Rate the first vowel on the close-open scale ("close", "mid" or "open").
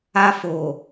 open